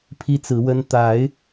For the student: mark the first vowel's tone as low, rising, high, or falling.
high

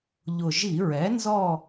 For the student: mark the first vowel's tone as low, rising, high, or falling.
low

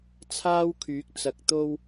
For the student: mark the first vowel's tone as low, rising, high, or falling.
high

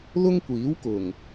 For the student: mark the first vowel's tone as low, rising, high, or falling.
high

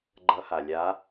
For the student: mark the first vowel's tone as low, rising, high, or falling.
rising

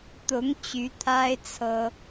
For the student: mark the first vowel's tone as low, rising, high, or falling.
rising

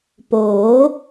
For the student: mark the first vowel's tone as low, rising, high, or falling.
rising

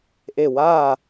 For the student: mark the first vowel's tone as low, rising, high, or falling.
falling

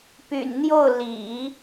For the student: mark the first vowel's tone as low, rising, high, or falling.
low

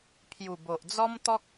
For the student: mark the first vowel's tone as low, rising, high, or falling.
low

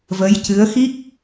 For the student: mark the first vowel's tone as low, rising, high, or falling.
rising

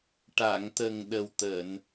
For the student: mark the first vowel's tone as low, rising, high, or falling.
low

